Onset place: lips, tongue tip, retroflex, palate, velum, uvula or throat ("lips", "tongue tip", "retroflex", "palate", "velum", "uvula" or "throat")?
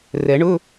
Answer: tongue tip